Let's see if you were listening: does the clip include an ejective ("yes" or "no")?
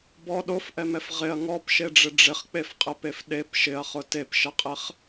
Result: yes